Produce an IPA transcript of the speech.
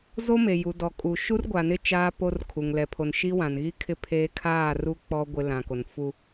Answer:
z o˦ m e˨ j u˨ d ɔ˨ kʼ u˨ ʃ u˦ r ɡʷ a˨ n ɪ˦ t͡ʃ aː˦ p o˦ r kʰ u˨ ŋ l ɛ˨ pʰ o˨ n ʃ i˦ w ã˨ n ɣ i˦ kʰ ɪ˦ pʰ e˦ kʰ aː˦˨ r u˦ k͡p ɔ˦ ɡʷ ɪ˦ l ã˨ k o˨ n f u˦

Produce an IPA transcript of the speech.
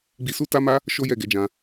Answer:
ɡ͡b i˧ s u˦ t a˦ m a˦ | ʃ o˦ j ɛ˦˨ ɡ ɛ˨˦ d͡ʒ ã˧

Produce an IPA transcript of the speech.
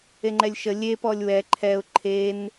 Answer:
e ŋ͡ǃ ɛ lʲ ʃ ə lʲ e p ɔ lʲ w ɛ ǃʰ ɛ ʊ̯ ǃʰ e n

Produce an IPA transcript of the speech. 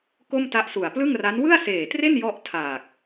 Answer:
k o˥˩ m t a˦˥ ʔ s u˨˩ a̯ p l ɯ˥˩ ŋ r a˦˥ n w ɯ˥˩ a̯ s eː˨˩ t r e˥˩ n j ɔ˥˩ ʔ tʰ aː˨˩ k̚

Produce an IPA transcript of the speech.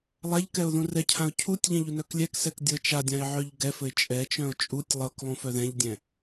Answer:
lˠ a ʎ k ɛ ʊ̯ ð ũ r ɛ cʰ ã ʊ̯ cʰ u tʲ ʎ ɛ̃ ʎ u n œ k lʲ ɛ k s ɛ k dʲ ɤ t͡ʃ a dʲ ã ɪ̯ ʕ œ ʎ ɡ ɛ f ɘ ɪ̯ t͡ʃʼ ɛ t͡ʃ œ̃ ʊ̯ t͡ʃʼ u tʲ lˠ ɤ k lˠ ũ f œ ð ɛ̃ ʎ dʲ ɛ̃

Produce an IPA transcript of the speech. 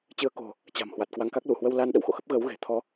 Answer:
t͡ɕ ɨ˨˦ ə̯ k o̤˨˩ | t͡ɕ a̤˨˩ m h w a˨˩ t̚ k w a˧ ŋ k a˦˥ k̚ l u˧˩ h w ə˧ w l a˧ n ɗ ə̰˧˨ w x o̰˧˨ x ə˦˥ p̚ ɣ əː˨˦ w ɣ e̤˨˩ t̪ʰ ɔ˨˦

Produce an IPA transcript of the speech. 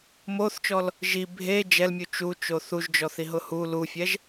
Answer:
m o θ t͡ʃ ɔ l | ʒ i bʱ e d͡ʒ ɛ l mʲ u t͡ʃ u t͡ʃ o θ u ʒ d͡ʒ ɔ θ i ɦ ʊ h u l u fʲ ɛ ʒ

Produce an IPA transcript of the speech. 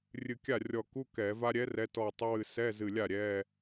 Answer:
rʲ ɨ˧˩ kʲ a˥˩ rʲ ɔ˧˩ k u˧˥˧ k ɛ˧˩˧ v a˥ ɾʲ ɛ˧˥ r ɛ˧˥ t ɔ˧˩ tˤ ə˧˥ w ɨ˧˩ s ɛ˧˥˧ z ɨ˧˩ lʲ a˥˩ ɾʲ ɛ˧˥˧

